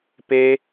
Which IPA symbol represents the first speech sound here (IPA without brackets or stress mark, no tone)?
p